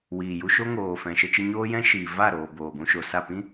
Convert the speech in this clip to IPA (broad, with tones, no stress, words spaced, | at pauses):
wiː˨ju˧ ʃo˦ŋoː˨ fɛ̃˨ʃə˧t͡ʃə˧ ɲoː˦jɛ̃˦ ʃiː˨ va˦˨ɾoː˨ boː˨ɡʷũ˧ʃo˨sa˦˨ pĩ˦